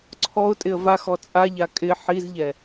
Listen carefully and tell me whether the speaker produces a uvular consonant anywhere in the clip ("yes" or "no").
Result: no